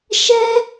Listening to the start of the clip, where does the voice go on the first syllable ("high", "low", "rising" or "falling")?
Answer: high